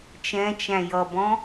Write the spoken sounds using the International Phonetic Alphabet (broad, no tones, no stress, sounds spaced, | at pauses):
t͡ʃ ɛ̃ t͡ʃ æ̃ j ʌ b ɔ̃